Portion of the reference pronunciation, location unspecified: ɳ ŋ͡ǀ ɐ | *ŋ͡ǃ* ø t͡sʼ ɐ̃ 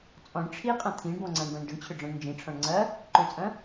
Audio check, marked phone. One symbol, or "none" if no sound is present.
ǃ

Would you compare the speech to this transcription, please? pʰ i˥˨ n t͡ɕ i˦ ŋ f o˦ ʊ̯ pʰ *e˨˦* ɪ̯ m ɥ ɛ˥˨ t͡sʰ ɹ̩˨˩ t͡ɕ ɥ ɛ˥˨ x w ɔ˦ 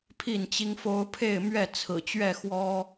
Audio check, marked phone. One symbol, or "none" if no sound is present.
e˥˨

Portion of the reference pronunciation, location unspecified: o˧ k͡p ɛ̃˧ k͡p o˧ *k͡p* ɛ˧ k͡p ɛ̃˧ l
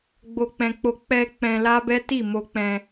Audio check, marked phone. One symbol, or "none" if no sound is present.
k͡p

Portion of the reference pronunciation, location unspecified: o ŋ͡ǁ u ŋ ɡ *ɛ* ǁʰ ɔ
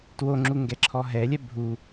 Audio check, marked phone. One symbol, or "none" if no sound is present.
ɛ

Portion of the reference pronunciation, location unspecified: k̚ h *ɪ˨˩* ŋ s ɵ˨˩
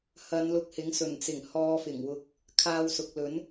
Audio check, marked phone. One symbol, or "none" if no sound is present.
ɪ˨˥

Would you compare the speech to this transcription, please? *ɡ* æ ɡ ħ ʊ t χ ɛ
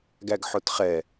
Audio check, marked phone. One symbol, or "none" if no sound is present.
ɡ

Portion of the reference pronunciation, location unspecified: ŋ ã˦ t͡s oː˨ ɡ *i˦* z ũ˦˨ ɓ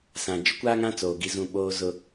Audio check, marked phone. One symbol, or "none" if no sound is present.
i˦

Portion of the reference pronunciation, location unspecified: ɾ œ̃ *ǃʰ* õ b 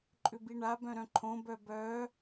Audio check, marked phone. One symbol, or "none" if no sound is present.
ǃʰ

